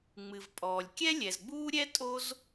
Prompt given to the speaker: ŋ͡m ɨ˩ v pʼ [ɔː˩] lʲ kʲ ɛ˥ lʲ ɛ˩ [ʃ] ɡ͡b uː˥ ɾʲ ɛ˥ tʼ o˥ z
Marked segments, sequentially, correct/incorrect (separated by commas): correct, incorrect